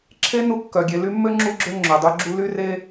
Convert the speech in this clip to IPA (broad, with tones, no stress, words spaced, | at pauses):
ǁʰe˥ nu˦kːœ˩ɡʲe˨ ly˦mːø˥ŋ͡ǁu˦ɡ͡ǁø˦ ŋ͡ǁø˩dˤy˦ɡ͡ǁu˥ ly˥re˥